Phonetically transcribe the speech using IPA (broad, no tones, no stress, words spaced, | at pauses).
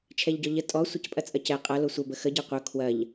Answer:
t͡ʃʰɛʎɟɔʎə tʼɔ sʷɐcpʼɐt͡sʼɐcɛ qʼɐ losʷɐ bəxə ɟiqʷœ kʰwɐʎ